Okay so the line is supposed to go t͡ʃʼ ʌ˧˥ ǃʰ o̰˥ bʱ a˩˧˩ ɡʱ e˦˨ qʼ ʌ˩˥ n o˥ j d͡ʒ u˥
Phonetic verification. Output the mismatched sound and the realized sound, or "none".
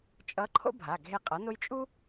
d͡ʒ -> t͡ʃʼ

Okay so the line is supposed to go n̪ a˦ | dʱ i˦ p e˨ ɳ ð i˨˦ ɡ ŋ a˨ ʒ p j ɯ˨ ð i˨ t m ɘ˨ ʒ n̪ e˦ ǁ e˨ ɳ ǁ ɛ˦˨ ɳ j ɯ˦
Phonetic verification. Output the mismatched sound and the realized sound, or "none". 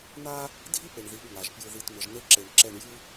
none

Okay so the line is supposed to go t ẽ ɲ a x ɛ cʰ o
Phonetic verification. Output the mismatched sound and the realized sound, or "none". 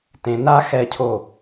ɲ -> n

